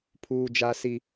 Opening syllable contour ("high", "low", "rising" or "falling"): high